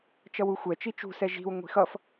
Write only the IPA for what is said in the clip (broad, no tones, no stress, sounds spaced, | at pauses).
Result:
t͡ʃ ʌ w u xʷ ɛ t͡ʃ i t͡ʃ ṳ s ɛ ʒ i̤ w ŋʷ i̤ x ʌ f